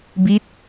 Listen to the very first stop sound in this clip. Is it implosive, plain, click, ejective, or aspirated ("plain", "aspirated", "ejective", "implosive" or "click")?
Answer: plain